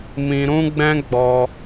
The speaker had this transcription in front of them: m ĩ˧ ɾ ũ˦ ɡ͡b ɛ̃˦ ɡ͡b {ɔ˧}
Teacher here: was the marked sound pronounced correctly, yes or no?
yes